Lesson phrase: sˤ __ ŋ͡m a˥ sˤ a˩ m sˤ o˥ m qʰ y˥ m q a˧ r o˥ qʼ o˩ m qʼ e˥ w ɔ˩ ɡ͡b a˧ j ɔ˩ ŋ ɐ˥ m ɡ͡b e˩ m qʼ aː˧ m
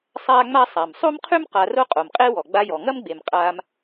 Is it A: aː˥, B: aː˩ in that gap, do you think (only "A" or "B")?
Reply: A